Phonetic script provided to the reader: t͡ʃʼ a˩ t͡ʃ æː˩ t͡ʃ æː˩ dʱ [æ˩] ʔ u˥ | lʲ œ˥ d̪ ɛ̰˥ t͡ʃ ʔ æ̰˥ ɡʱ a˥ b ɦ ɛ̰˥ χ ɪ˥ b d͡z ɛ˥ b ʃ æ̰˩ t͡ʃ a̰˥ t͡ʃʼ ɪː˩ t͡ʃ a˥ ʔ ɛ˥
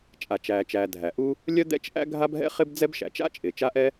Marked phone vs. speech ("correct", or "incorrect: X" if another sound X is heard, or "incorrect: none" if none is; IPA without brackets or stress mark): correct